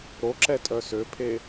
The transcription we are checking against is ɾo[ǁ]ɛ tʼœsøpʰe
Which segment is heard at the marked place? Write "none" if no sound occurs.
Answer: ǁ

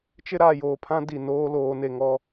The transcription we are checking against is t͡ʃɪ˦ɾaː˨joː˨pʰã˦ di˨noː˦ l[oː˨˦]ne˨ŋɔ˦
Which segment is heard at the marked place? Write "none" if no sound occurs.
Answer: oː˨˦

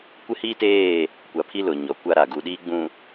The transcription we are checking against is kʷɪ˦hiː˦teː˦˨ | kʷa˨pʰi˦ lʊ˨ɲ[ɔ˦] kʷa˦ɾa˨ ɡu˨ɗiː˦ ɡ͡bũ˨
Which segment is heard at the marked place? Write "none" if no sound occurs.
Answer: ɔ˨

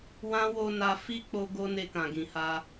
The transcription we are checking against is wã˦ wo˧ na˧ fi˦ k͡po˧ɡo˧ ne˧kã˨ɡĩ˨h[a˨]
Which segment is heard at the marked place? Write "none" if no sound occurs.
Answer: a˧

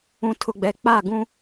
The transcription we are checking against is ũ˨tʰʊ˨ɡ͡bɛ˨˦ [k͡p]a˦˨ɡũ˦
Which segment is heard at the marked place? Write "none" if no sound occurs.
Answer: k͡p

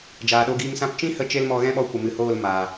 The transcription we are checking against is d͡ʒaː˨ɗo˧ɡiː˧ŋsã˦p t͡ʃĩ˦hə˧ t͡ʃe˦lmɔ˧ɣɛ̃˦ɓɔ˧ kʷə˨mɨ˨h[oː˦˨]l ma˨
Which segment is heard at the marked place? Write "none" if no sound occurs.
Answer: oː˦˨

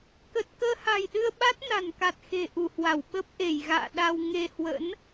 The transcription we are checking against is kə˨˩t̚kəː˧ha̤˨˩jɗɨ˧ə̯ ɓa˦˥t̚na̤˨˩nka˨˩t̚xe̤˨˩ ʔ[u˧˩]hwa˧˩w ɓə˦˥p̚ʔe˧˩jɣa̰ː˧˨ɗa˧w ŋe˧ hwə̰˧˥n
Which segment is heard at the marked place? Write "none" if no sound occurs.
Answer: u˧˩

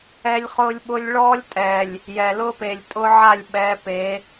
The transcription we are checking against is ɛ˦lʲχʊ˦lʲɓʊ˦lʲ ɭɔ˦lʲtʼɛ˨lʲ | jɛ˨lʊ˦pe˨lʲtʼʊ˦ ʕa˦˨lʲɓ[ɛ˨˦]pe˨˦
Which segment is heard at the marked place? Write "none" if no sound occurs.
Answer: ɛ˨˦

